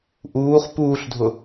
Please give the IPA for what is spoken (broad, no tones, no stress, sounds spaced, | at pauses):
ʔ uː χ p uː ɬ dʱ ʊ